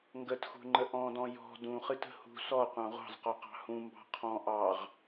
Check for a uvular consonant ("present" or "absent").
present